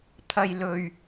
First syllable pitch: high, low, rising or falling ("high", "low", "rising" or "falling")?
low